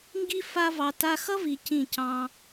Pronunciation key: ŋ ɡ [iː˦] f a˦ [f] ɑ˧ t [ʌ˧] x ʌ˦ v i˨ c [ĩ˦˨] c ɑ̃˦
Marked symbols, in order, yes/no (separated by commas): no, no, no, yes